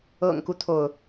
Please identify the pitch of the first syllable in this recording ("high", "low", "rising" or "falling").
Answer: low